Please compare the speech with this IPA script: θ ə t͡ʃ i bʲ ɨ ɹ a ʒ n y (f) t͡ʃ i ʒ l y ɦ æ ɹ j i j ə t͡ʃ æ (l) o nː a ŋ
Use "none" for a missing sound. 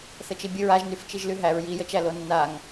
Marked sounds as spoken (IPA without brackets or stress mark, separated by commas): f, l